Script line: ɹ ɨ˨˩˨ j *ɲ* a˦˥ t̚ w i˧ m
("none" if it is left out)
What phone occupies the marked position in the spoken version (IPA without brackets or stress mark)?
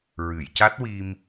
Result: c